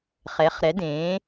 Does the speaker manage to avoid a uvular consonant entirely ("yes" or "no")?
no